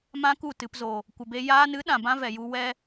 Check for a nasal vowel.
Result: present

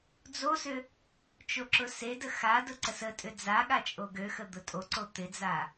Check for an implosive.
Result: present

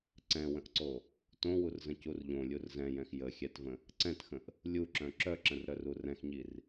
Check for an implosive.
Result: absent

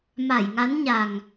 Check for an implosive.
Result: absent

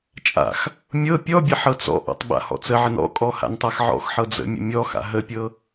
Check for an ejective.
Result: present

